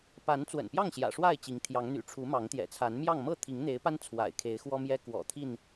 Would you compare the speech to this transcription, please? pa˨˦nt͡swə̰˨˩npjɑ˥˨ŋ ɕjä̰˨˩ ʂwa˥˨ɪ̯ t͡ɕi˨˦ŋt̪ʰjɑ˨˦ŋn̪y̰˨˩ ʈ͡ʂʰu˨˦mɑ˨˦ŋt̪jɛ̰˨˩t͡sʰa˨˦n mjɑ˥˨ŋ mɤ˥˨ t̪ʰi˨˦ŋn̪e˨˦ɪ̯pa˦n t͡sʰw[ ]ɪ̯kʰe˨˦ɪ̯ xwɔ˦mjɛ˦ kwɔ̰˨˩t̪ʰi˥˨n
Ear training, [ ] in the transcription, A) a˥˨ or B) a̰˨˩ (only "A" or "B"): B